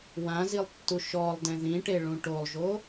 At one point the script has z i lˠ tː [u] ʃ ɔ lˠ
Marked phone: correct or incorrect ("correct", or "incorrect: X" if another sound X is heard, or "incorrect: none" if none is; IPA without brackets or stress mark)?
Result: correct